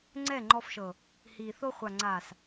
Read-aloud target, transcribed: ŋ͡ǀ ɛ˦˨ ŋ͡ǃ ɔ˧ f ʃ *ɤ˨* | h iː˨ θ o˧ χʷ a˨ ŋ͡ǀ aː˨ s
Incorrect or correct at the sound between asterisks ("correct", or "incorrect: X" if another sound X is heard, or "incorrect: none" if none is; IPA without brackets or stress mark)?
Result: correct